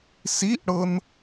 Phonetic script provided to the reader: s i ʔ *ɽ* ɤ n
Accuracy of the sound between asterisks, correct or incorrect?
correct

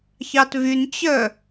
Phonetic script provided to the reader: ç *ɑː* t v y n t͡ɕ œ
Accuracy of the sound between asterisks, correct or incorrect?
incorrect: ɑ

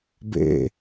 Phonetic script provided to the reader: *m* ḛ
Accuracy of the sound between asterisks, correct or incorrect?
incorrect: b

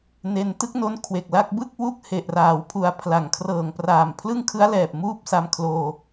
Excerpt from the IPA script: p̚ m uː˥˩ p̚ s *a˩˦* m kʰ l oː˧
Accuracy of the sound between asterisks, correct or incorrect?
incorrect: a˧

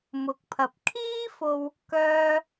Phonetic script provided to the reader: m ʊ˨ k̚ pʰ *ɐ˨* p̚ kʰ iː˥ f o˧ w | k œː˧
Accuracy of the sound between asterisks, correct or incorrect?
correct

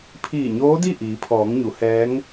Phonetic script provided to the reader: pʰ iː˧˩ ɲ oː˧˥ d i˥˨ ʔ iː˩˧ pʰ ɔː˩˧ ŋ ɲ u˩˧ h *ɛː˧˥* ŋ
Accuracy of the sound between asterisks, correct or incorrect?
correct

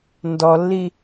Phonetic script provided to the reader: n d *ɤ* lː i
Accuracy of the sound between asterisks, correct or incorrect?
incorrect: ɔ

